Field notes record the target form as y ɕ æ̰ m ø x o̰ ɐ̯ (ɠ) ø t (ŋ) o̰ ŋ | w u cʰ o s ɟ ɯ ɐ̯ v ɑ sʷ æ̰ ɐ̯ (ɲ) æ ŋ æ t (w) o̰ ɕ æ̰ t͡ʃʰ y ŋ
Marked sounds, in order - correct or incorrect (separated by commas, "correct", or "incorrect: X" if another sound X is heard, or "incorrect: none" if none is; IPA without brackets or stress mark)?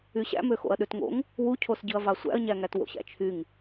incorrect: ɗ, correct, correct, correct